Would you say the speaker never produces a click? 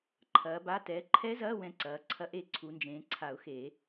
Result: no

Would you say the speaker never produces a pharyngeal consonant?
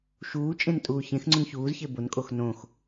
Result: yes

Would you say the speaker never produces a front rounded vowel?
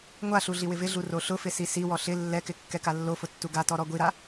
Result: yes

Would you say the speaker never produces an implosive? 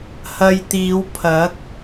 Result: yes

